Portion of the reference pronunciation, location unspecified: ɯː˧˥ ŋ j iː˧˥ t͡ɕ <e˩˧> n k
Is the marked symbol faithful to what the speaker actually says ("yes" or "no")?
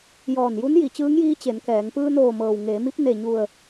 yes